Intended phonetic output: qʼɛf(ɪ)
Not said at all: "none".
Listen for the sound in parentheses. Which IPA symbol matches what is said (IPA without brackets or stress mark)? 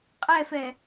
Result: ɛ